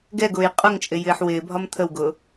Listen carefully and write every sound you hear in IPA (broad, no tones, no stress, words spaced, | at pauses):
ɡɛɡʊːj qʼʊŋt͡ʃʼɪ jɪːħwɪːbʱɒm t̪ʰəwɡʊː